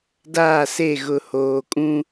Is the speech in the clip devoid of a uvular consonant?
yes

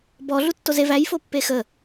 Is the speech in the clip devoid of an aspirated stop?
yes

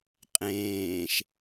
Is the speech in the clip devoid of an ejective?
no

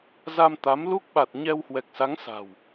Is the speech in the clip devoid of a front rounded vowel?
yes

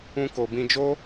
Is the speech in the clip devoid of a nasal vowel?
no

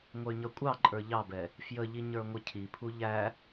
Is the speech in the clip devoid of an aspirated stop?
no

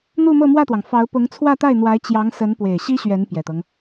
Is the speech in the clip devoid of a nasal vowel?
yes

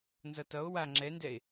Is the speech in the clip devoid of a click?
no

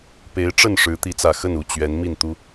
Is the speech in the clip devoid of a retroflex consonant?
no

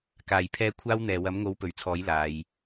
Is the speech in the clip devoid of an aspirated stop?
no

